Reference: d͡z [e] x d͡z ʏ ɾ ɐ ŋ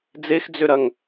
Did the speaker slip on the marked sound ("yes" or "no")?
no